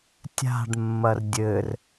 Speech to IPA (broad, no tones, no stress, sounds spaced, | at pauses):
tʲ a̤ ɖ mː ɐ r dʲ ɘ r